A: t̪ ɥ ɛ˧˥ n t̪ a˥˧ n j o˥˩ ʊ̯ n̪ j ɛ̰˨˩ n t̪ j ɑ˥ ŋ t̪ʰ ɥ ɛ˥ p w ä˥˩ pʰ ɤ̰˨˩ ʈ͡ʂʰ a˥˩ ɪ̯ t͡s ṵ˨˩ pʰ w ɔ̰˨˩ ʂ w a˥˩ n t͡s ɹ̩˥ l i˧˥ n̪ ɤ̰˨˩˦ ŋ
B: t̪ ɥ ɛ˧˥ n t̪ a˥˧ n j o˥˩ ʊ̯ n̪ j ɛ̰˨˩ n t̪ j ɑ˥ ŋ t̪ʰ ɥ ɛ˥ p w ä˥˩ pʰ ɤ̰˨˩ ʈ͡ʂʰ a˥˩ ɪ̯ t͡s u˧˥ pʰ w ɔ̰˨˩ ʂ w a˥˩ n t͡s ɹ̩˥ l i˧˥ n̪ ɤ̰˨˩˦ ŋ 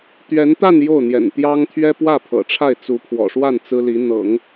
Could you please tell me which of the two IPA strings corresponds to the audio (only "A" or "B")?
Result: B